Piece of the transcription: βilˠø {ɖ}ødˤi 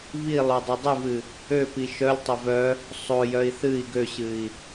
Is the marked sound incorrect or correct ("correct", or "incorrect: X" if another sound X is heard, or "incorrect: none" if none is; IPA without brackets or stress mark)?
incorrect: dˤ